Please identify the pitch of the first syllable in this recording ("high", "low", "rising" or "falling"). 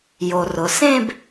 low